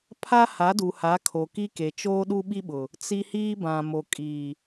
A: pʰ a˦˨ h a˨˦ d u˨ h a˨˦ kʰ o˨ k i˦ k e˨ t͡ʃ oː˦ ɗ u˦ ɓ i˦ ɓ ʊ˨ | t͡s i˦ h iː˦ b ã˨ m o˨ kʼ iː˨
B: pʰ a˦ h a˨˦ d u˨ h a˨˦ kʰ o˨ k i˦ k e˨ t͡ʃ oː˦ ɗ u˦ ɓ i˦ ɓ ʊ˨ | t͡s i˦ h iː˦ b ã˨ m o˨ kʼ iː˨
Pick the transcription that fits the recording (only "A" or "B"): B